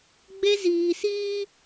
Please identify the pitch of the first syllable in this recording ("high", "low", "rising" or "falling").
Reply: high